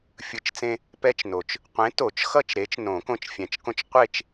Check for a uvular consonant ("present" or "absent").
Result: present